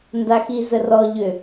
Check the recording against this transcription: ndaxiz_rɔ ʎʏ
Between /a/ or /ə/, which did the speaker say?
ə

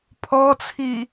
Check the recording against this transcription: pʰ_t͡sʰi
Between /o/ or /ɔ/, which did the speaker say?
ɔ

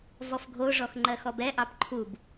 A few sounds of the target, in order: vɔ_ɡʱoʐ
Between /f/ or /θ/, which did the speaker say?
f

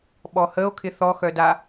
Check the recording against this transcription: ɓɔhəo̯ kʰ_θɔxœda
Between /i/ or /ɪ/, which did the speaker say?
ɪ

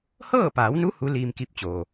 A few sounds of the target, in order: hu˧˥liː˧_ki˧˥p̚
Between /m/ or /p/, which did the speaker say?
m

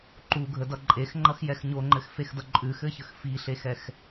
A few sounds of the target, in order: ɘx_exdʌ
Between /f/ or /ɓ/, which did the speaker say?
f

